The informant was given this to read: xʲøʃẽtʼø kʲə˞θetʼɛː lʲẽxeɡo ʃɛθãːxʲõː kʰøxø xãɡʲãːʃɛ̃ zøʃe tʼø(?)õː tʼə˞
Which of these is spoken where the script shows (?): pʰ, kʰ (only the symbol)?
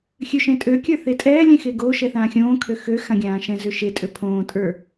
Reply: pʰ